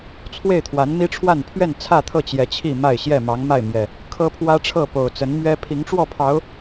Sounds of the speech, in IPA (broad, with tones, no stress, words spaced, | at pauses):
t͡sʰwe˥˨ɪ̯t̪ʰwa˨˦nmi˦ʈ͡ʂʰwa˥˨n pʰɥɛ˥˨nt͡sʰä˥˨t̪ʰɤ˥˨ t͡ɕjɛ˨˦t͡ɕʰi˥˨ ma˥˨ɪ̯ɕjɛ˥˨ mɑ˨˦ŋma˥˨ɪ̯ mjɛ˨˩ | kʰɤ˦pʰwä˦ʈ͡ʂʰɤ˥˨ po˨˩ʊ̯t͡sə˨˦nmɥɛ˦ pʰi˨˦ŋʈ͡ʂwɔ˥˨pʰɑ˨˦ʊ̯